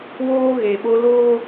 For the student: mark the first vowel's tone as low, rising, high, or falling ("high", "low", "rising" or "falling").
high